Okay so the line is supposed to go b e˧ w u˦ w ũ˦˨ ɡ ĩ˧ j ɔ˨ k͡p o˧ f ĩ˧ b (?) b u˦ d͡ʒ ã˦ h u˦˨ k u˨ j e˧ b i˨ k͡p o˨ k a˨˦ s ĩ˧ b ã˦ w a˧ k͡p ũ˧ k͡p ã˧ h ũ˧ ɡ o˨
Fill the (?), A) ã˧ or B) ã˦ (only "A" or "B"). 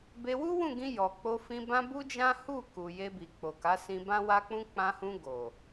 B